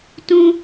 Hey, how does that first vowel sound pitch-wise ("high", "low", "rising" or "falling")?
low